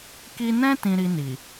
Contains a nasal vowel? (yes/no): yes